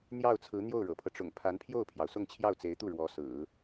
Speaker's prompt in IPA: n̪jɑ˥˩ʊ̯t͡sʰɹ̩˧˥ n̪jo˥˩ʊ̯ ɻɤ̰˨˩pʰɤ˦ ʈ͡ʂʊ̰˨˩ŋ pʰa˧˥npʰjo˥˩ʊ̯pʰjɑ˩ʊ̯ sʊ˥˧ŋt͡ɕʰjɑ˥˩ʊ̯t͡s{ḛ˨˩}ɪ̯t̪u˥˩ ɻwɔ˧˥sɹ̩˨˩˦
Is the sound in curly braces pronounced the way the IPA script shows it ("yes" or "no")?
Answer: no